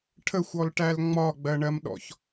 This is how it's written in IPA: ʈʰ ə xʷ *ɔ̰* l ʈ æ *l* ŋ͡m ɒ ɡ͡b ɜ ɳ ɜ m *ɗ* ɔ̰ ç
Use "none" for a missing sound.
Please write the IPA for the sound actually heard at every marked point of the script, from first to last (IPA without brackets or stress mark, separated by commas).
ɔ, l, ɗ